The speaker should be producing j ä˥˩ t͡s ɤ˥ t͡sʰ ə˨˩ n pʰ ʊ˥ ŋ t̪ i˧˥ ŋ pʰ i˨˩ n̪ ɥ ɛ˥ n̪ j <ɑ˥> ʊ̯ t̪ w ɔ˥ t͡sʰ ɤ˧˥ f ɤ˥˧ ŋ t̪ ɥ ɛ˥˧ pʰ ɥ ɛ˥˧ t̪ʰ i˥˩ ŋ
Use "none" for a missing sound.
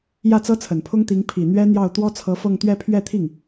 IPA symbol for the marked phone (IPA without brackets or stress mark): ɑ˥˩